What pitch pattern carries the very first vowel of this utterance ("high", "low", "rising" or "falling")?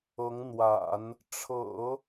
rising